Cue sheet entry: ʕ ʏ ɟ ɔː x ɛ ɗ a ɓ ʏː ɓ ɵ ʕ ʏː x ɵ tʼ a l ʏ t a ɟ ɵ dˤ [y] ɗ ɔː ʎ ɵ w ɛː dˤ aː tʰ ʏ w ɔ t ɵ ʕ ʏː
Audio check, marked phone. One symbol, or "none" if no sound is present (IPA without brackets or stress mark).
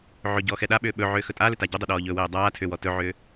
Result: ʏ